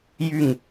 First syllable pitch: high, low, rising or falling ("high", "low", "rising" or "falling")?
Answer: falling